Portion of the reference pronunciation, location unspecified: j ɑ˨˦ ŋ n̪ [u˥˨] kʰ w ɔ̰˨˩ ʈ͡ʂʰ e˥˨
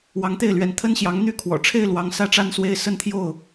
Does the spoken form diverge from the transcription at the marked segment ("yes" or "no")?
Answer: yes